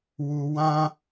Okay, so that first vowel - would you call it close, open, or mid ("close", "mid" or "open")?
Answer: close